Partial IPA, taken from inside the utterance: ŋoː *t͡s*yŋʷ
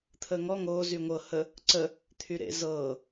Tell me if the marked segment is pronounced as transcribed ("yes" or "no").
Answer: no